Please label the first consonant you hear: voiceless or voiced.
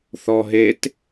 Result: voiceless